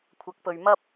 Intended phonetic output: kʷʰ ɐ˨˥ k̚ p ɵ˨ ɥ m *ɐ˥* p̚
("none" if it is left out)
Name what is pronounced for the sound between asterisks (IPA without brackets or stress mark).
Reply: ɐ˥